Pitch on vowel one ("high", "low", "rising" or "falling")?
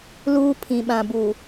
high